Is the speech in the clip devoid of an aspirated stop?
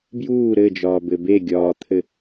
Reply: no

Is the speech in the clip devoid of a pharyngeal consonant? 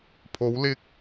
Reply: yes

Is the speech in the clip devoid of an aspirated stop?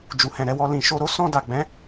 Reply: yes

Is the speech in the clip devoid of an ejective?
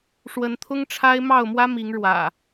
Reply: yes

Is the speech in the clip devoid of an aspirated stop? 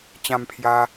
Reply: no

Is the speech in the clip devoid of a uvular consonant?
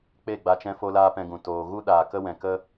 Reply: yes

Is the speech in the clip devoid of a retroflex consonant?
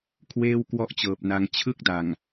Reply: yes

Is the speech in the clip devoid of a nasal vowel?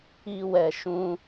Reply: no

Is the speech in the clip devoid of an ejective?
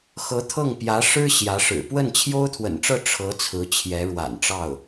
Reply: yes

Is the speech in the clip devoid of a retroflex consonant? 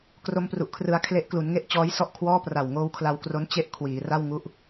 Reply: yes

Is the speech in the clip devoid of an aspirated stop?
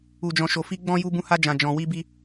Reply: yes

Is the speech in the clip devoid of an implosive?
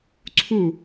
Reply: yes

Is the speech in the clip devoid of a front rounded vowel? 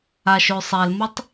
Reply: no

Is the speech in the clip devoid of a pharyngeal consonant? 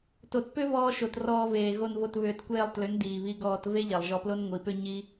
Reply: yes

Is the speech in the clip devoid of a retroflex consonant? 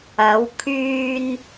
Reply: yes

